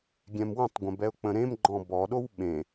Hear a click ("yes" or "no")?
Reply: yes